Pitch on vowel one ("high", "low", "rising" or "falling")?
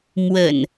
low